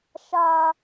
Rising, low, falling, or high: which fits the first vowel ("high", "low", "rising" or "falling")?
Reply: high